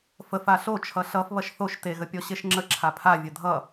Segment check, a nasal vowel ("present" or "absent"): absent